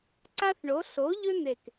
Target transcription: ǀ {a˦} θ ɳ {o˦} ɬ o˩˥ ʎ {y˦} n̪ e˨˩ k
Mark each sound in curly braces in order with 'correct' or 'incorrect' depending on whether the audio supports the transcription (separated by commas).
correct, incorrect, incorrect